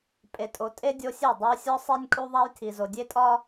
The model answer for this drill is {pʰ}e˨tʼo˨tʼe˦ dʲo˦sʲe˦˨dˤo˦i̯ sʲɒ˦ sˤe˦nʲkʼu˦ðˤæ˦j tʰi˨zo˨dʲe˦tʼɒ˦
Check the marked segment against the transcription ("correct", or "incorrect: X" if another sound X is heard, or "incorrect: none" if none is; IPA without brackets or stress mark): incorrect: pʼ